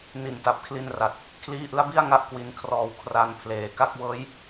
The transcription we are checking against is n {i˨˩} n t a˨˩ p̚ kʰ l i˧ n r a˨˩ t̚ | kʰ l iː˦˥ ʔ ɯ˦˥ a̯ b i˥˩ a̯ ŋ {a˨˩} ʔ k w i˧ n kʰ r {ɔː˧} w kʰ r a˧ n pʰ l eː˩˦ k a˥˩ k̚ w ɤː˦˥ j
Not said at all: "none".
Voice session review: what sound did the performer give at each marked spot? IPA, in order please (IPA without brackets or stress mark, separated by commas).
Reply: i˨˩, a˦˥, ɔː˧